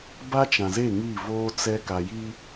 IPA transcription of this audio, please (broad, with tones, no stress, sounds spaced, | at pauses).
b a˦ t͡ʃ ã˨ z e˦˨ ŋ iː˦˨ v oː˦ t͡s ɛ˦ k a˨ j i˦